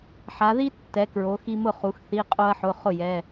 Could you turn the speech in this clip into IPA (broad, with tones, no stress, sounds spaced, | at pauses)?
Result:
ħ a˩˧ ð i˥ tː ɛ˩˧ k ɹ o˩˧ x i˧ m ʊ˥˩ χ u˩˧ x θ i˩˧˩ qʼ o˧ ɐ̯ ħ ʊ˩˧˩ χ ʊ˥˩ j ɛ˩˧˩